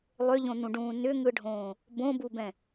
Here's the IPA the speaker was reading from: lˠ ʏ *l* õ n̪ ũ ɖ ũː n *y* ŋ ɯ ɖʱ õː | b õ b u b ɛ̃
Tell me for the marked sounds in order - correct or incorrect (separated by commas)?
incorrect, incorrect